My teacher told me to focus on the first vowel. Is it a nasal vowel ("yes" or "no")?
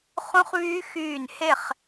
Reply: yes